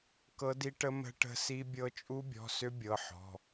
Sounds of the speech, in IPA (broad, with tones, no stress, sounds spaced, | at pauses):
k ɤ˦˥ d i˦˥ ʈ ə˦˥ m ə̤˦˥ ʈ ə̤˦˥ s i˦˥ bʲ ɤ˦˥ t͡ʃʼ u˦˥ bʲ ɔ̤˩˧˩ s ʏ˦˥ bʲ ɤ˩˧˩ ħ ɔ̤˩˧˩